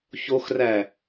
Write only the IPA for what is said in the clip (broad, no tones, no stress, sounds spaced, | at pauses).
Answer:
ç o x r æ